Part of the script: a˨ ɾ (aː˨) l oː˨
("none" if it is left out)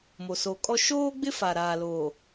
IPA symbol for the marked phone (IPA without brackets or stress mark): aː˨